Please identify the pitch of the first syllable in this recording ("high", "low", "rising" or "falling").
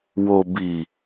low